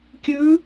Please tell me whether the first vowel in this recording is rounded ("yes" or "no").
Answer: yes